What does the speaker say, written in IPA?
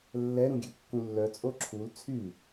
lː ɛ ɾ ũ ɡʲ ø kː ũ lː œ t͡sʼ o ǁʰ u l t͡sʰ y

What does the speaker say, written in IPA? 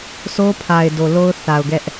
sʰ o˦ pʰ a˨ ɪ̯ d o˨ l o˦ ʊ̯ θ a˨ ʊ̯ ɡ ɛ˦ ʔ

